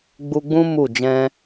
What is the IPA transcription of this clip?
ɡ͡b u˧ ɡ͡b ũ˦ m u˦˨ d͡ʒ ɛ̃˧

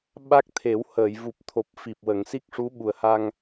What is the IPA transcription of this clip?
ɓ a˦˥ k̚ t̪ʰ e˨˩˦ w h əː˨˩˨ j v u˨˩ p̚ t̪ʰ o˨˩ p̚ f i˨˩ p̚ w ə˨˩˨ ŋ s i˦˥ k̚ ʂ u˧˥ ɓ u˨˩ ə̯ h a˧ ŋ

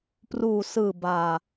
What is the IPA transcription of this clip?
p r uː˨˩ s ɯː˨˩ b aː˧

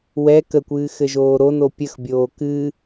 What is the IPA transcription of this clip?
w ɛ k ə kʷ ɨː x ɘ ʒ oː ɾ o n o pʲ ə x bʲ oː k ɨ

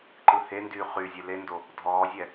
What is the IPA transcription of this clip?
ǃ ɯ h e n d yː χ y zʲ ɨ l e n d o | dʱ ɔː zʲ ɛ

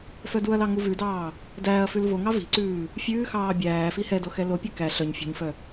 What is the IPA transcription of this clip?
f œ d u ɐ̯ l ɑ ŋ u v ʉ d ɑː | d æː ɐ̯ f ʉ l v o ŋ ɑ v i̤ ǀ ʉː | fʲ ʉː x ɑː bʲ æː f i h ɛ d o x ɛ l o pʲ ɛ k æ ɬ œ ɲ fʲ ṳ ɲ f œ

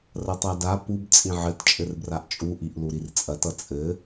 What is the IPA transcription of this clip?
r ɐ tˤ a d a p u b t͡sʼ ĩ ʕ ɘ t t͡ʃʼ ɘ r b r a ʔ t͡ʃʼ u ʔ i ʔ l u ɾ i r t͡sʼ ɐ t ʌ t͡sʼ ɘ

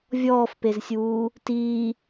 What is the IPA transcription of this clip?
vʲ ɔː f p e z sʲ uː | t iː

